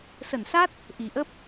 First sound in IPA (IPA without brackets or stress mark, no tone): s